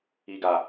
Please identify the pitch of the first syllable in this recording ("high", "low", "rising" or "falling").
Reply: low